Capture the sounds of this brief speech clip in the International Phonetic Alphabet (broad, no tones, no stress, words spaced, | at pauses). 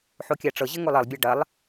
ħokʲaʈ͡ʂɤʑɘ ŋolˠɘlˠbʲa ɖɐlˠ